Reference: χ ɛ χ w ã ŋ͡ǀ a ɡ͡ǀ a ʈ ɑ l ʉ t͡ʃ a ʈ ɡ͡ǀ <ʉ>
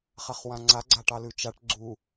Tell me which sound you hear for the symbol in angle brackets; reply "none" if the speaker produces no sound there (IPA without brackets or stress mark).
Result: u